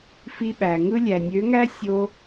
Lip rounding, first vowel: unrounded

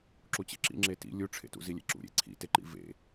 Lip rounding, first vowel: rounded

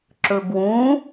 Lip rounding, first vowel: rounded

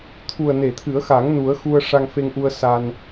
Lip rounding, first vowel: rounded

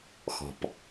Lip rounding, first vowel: rounded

